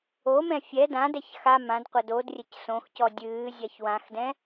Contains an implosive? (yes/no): no